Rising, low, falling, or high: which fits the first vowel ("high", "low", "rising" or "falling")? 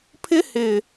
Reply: high